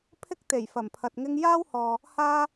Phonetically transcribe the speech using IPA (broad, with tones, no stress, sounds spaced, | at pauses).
pʰ ɪ˥ k̚ t̪ e˨˩ j f ɐ˨˩ m pʰ ɐ˨ t̚ ŋ ɪ˥ ŋ j aː˥ w h ɔː˨ | h aː˥